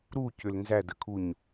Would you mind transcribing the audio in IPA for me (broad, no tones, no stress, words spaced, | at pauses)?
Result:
ɾucʏl nzædəkʰuɲ